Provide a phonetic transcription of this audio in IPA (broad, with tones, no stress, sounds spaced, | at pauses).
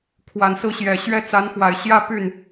kʰ w a˨˩ n s ɹ̩˥˩ ɕ j ɛ˨˩ ɕ ɥ ɛ˥ t͡s a˧˥ n x w a˨˩ ɪ̯ ɕ j ä˥ p y˥˩ n